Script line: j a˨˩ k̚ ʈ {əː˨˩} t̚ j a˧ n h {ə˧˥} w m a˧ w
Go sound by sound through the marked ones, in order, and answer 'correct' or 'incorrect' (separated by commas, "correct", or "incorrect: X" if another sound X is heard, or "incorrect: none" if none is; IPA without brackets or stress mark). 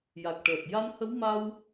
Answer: correct, correct